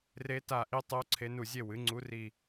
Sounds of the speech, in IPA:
r e˧˥ t a˦˨ ʔ i˧˥ tˤ o˧˥ ǀʰ e˧˥ n u˦˨ zʲ e˦˨ w ɨ˩˥ ŋ͡ǀ u˧˥ r i˦˨

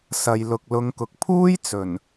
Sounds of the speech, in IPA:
s ɐ˨ j l ʊ˨ k̚ l ʊ˨˧ ŋ k ʊ˨ k̚ pʰ uː˥ j t͡s ɵ˨˩ n

